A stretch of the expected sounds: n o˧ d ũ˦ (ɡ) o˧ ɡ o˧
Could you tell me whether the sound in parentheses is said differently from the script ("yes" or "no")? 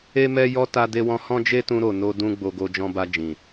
yes